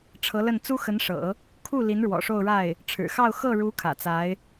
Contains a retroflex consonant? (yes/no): yes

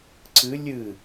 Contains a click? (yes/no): yes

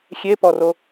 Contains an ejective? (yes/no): no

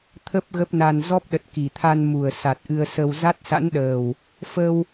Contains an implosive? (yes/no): yes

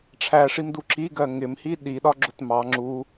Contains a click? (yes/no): yes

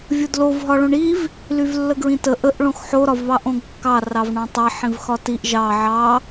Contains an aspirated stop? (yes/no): no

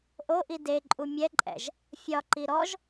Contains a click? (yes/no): yes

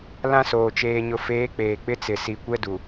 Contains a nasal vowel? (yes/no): yes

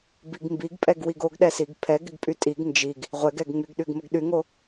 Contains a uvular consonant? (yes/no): yes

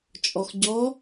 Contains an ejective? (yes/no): yes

